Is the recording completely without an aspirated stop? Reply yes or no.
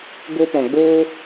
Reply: yes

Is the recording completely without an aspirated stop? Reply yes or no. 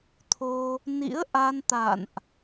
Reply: no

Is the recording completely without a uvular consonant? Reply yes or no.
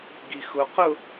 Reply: no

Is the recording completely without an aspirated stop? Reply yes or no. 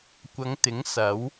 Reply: yes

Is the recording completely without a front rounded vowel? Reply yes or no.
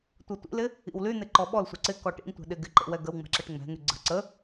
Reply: no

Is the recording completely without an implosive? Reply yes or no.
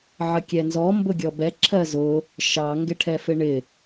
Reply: yes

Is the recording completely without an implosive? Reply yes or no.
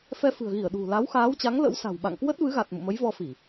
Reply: no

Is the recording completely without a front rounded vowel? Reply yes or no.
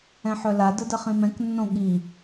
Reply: no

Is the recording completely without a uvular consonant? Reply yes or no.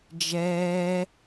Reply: yes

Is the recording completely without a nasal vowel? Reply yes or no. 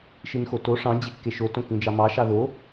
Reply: no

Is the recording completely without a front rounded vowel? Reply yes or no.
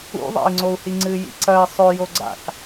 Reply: yes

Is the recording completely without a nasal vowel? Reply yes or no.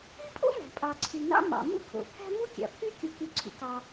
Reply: yes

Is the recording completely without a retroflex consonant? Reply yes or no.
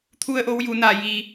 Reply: yes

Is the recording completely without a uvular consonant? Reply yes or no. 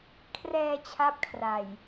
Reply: yes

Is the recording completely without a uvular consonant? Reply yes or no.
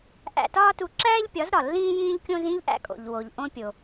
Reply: yes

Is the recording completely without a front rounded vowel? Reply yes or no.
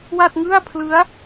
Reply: yes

